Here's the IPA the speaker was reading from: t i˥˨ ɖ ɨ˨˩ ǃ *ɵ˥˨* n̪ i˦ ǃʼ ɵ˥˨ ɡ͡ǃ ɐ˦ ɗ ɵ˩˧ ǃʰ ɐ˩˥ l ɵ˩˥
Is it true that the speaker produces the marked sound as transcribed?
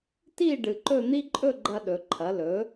yes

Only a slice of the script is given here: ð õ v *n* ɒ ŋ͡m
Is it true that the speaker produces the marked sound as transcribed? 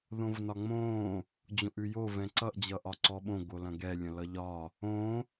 yes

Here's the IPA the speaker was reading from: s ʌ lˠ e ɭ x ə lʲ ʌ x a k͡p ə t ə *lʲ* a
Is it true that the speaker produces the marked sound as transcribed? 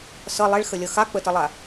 no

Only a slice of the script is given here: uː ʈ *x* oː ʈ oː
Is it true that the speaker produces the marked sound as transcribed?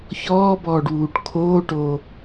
no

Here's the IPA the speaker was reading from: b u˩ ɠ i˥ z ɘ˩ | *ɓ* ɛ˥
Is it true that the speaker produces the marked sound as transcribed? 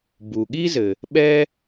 yes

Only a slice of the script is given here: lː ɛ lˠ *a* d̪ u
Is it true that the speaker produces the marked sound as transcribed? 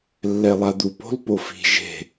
yes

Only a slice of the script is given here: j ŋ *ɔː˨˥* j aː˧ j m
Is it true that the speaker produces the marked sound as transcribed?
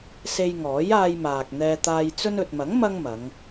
yes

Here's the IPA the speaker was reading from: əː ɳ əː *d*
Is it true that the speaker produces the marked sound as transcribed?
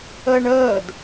yes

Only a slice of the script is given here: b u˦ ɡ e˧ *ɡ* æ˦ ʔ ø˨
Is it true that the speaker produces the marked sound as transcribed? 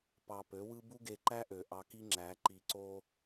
no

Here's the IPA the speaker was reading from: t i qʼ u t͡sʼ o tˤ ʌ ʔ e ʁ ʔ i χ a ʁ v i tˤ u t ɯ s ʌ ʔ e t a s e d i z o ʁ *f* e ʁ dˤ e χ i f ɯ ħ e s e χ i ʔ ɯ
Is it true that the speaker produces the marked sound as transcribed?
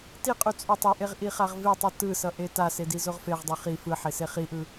yes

